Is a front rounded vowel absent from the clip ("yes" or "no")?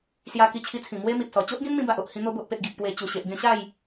yes